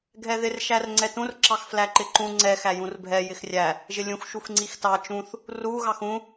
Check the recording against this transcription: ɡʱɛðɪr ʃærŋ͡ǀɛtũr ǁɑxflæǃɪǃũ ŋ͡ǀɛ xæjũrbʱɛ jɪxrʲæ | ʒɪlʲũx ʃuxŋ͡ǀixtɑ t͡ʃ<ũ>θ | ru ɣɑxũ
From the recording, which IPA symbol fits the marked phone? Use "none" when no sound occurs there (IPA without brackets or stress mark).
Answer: ũ